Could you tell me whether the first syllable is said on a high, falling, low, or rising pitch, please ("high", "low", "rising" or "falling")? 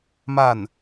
falling